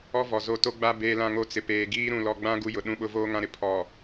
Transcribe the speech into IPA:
ɔ˦ v ɔ˨ z o˦˨ t o˦ ɡ͡b a˦ b eː˦ l ã˦ ŋ o˦ t͡s ɪ˨ p eː˨ ɡ iː˦ ɾ ũ˨ l ɔ˨ ɡ͡b ã˦ ɡ u˦ j ʊ˨ ɗ ũ˦ ɓ ʊ˦ v oː˦ ŋ ã˦ ɾ ɪ˦ pʰ ɔ˨

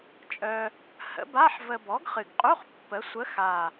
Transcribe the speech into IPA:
t͡ʃʼ œ˧ | h ə̰˨˥ b a˧˥˧ ħ v ə˧ b ɔ˨˥ ɡ χ ɨ˨˩ ɡ qʼ u˧˥˧ χ pː ə˨˥ sʷ ə˨˥ x a˨˩

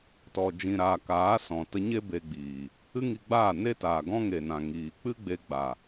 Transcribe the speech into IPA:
t ɔ˨ d͡ʒ ĩ˨ ɾ aː˨ k aː˨˦ s ɔ̃˨ t ə˧ ɲ e˦ b e˧ ɡ͡b iː˨ | ɨ˦ ŋ i˧ ɡ͡b aː˦˨ n e˦ t aː˨ ɡ ɔ̃˦ ŋ e˨ n ã˨ ŋ iː˨ k͡p ɨ˦ ɡ͡b e˧ ɡ͡b a˨

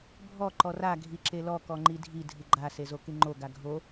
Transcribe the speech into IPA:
bʱ ɔ ǃ ɔ r a ɡʱ i ǁ e l ɔ k ɔ ŋ͡ǃ i dʱ i dʱ ɨ ɡ͡ǃ a s e z o k ɨ ŋ͡ǃ o ɡ a ɡʱ o

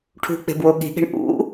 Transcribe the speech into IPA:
ʈʰ ṳ k͡p e̤ b w o ɠ i̤ ɠ e̤ ɳ ʔ ṵ

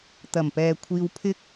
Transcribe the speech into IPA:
t̪ ɐ˨˩ m p ɛː˨ kʷʰ iː˧ w pʰ ɪ˥ k̚

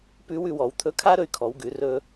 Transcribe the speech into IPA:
p ʉ˧˥ w ʉ˧ w ɔ˩˧ w t̪ʰ ɵ˧˥ kʰ a˥ ɾ ɵ˧ y̯ kʰ ɔ˩˧ w ɡ ʉ˩˧ r ɵ˧

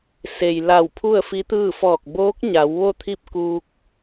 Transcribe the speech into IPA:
s e˩ j l a˧˩ w pʰ u˥˨ ə̯ f i˧˥ t̪ ɯː˥˨ f ɔː˧˩ k̚ b oː˧˥ k̚ ɲ a˩˧ w ʋ o˥˨ t̪ʰ i˥˨ p̚ k uː˧ k̚

